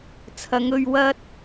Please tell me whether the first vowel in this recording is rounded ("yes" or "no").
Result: no